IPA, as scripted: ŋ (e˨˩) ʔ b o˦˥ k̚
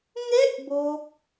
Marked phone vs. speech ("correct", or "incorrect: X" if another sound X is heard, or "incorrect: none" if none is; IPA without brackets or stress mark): incorrect: e˥˩